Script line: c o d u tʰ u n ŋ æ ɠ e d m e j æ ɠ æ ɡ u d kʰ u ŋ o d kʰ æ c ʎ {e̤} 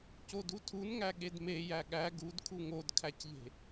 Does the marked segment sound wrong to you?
no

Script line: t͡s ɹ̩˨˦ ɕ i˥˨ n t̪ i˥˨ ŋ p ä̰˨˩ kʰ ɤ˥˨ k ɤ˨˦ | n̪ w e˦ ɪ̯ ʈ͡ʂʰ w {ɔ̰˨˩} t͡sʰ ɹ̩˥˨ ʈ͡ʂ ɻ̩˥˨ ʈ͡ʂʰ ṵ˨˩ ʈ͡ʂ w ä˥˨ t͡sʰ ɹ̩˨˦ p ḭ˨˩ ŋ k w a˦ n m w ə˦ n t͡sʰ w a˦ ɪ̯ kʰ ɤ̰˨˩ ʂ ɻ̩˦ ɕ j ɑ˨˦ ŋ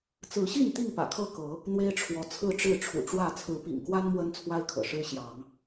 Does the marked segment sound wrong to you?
yes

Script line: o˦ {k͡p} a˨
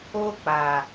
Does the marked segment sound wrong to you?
no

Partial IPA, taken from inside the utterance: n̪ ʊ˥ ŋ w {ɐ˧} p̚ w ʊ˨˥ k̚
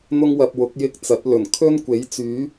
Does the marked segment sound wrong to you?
no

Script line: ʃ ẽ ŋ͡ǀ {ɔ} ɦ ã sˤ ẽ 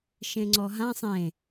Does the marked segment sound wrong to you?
no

